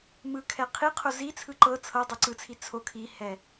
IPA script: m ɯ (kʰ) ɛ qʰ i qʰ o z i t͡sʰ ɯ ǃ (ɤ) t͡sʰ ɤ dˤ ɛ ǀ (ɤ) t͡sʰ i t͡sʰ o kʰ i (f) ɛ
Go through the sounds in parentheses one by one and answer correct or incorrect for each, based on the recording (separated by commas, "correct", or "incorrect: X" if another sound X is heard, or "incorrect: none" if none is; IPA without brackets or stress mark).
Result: correct, correct, incorrect: ɯ, incorrect: h